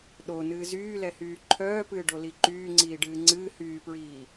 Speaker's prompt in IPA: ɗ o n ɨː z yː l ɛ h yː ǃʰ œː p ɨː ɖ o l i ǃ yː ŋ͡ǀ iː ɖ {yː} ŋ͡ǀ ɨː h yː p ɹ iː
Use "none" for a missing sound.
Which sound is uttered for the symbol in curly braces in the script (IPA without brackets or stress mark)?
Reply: ɨː